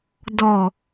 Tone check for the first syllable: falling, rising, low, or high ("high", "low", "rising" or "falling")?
low